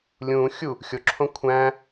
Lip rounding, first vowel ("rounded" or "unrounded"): rounded